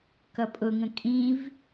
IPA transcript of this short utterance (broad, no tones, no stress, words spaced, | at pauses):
kʌpʼʊŋə̃ kʼĩv